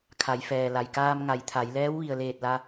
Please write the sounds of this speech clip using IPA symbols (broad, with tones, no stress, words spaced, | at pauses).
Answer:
kʰa˩˧jfɛː˩la˩j kaː˧m ŋa˩˧jt̪ʰa˩˧jlɛː˧˥w ʋi˩ə̯leː˧˩t̚ la˧